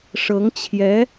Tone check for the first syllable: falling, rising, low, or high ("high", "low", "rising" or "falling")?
rising